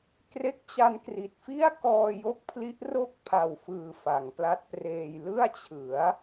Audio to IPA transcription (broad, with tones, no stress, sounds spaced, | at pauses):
k r e˦˥ k̚ t͡ɕ a˧ n k r i˨˩ t̚ f i˥˩ a̯ k ɔː˧ j o˦˥ k̚ pʰ l i˦˥ ʔ r o˥˩ k̚ pʰ a˨˩ w f ɯː˨˩ f a˩˦ ŋ p l a˦˥ t̚ p r eː˧ j l ɯ˥˩ a̯ t͡ɕʰ ɯ˩˦ a̯